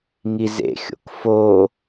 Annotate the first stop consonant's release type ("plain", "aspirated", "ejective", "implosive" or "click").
plain